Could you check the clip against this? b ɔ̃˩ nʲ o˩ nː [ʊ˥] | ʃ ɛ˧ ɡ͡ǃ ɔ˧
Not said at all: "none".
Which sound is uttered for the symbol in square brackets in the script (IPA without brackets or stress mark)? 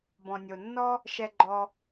ɔ˥